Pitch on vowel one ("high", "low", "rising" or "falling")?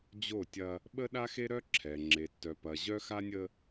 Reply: falling